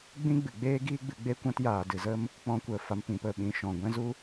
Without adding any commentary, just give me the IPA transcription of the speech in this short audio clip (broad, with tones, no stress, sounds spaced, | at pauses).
ɡ͡b ĩ˦ ɡ͡b ɨ˨ ɡ͡b eː˦ ɡ iː˦ ɡ͡b ɨ˨˦ ɡ͡b e˦ kʷ ã˦ t j aː˨ d ɨ˨ z ə˦ m | k͡p ɔ̃˧ kʷ ə˨ f a˨ m p ĩ˨ p ə˨ ɓ ĩ˨ ʃ ɔ̃˨ ɡʷ ɛ̃˦ z u˦